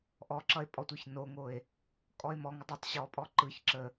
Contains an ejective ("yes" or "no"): yes